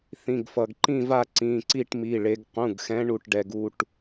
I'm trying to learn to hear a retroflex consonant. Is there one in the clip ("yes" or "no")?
yes